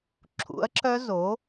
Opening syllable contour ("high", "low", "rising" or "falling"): rising